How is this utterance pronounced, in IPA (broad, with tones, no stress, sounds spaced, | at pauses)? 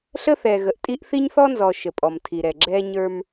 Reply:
ɬ ə˦ θ ɛ˨ ɣ ə˨ ʔ tʼ i˦ ʔ θ i˦ ɲ θ ɔ˦ n z ɔ˨ ʃ ə˨ pʼ ɔ˨ m tʰ i˨ ɾ ɛ˨ ɡ͡ǁ ɛ˦ ɲ ə˞˦ m